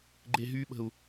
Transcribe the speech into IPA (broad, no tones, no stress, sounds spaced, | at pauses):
ɡ͡ǃ e ɦ y ɓ ə̤ u̯